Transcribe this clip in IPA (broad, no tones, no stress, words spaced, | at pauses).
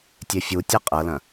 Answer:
tʲefʲutʲɐ qʼɤlɐ̃